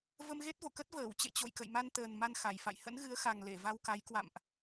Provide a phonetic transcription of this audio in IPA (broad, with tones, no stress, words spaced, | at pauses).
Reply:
və˧mɣe˦˥t̚vo̰˧˨kə˦˥t̚ vəː˧˩wt͡ɕḛ˧˨ t͡ɕo̰˧˨jkə̰˧˨jma˧nt̪əː˨˩n ma˧n xa˧˩jfa̰˧˨j hə̰˧˥nɣɨ˨˦ə̯xa˨˩ŋ le˧˩va˧wka˨˦jkwa̰˧˨mʔ